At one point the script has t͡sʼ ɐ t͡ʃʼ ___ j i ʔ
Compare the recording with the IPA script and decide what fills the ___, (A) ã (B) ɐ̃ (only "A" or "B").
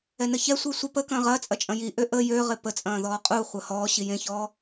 B